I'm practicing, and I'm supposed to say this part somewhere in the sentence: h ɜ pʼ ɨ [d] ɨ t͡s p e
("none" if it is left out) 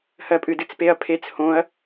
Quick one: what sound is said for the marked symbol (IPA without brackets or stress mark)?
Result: d